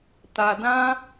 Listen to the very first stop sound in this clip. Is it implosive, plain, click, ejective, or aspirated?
plain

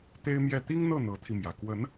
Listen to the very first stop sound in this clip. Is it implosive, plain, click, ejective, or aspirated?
plain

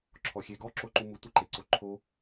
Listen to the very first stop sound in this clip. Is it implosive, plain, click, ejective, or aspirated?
click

